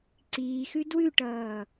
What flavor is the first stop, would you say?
click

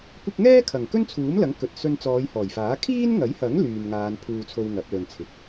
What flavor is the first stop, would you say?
plain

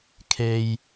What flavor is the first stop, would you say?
aspirated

